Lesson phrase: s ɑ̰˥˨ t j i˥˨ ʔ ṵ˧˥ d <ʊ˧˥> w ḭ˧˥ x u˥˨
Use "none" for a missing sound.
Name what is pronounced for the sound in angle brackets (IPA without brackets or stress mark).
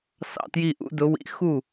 ʊ˧˥